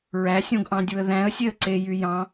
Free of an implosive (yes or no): yes